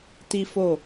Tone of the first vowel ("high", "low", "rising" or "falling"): high